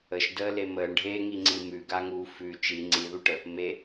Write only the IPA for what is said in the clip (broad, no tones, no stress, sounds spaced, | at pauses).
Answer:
ə ʃ d əː l e m əː ɳ ɖʱ eː ŋ i ŋ͡ǀ i m ʉ ɡ a ŋ uː f ʉ t͡ʃ i ŋ͡ǀ i ð u ʈ ə | m e